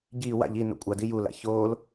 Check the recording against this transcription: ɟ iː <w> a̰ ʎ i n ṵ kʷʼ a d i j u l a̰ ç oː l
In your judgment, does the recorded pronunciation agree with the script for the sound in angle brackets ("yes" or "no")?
yes